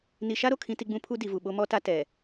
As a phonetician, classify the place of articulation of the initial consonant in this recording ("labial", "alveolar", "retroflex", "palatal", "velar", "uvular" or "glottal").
alveolar